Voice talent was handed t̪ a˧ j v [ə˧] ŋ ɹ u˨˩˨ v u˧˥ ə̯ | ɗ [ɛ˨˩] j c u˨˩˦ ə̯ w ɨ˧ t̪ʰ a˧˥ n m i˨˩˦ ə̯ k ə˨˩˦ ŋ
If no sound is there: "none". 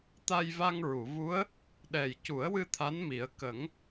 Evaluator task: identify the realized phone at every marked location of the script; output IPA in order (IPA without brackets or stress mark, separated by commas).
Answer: a˧, ɛ˨˩